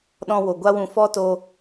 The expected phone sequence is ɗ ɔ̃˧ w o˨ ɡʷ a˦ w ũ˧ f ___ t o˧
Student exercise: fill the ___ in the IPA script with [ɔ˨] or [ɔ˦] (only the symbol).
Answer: ɔ˦